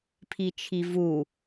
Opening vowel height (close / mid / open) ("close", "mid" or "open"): close